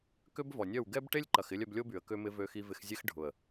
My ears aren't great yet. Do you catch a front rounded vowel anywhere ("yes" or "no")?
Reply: yes